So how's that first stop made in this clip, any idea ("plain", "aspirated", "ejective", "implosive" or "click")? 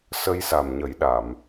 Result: implosive